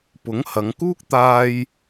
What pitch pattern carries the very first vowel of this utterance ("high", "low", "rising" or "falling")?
rising